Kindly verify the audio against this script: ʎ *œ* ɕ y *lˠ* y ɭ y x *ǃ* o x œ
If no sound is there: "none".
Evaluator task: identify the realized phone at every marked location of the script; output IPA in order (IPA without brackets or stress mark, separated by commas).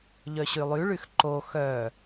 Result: œ, lˠ, ǃ